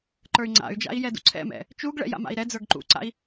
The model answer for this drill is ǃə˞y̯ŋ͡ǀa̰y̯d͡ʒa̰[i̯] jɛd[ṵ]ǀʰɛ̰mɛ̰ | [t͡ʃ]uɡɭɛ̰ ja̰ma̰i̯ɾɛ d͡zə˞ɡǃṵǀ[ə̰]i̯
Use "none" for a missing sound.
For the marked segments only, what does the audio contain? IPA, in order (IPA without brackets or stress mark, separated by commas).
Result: i̯, ṵ, t͡ʃ, a̰